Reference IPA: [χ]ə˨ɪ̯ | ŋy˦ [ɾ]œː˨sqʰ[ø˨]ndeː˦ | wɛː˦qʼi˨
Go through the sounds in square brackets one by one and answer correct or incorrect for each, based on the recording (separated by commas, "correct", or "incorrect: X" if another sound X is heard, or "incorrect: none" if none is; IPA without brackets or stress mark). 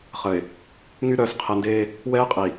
correct, correct, incorrect: ɛ˨